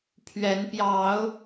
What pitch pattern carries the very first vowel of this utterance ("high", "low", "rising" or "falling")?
rising